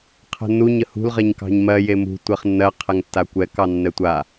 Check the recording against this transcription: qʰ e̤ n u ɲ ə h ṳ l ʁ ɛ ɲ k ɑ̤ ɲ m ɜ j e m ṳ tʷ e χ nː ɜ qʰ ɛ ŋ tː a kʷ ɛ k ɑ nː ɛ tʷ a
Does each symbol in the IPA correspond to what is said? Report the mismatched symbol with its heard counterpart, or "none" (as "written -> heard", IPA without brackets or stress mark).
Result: e̤ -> ɛ̤